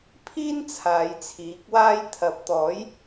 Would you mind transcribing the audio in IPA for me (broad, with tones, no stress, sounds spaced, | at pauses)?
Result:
pʰ iː˥ n t͡sʰ aː˨˧ j t͡sʰ iː˨˥ k̚ w aː˥ j t̪ʰ ɐ˨˥ p̚ t̪ ɔː˨˥ j